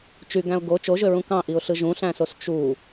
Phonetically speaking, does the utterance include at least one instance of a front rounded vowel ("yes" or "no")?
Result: yes